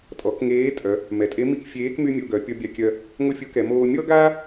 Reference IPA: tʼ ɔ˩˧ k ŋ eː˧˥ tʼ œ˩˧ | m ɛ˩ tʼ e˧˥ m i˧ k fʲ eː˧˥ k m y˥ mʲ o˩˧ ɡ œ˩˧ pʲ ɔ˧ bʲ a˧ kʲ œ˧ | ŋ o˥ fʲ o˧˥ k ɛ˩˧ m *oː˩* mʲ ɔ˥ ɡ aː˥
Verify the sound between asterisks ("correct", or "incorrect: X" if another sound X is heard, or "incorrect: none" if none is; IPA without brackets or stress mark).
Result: incorrect: oː˧